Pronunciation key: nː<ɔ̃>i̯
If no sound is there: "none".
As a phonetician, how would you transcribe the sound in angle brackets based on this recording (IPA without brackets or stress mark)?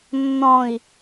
ɔ̃